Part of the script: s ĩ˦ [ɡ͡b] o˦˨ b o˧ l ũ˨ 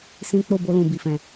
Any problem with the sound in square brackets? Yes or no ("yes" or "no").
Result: yes